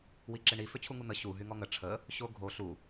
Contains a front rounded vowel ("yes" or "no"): yes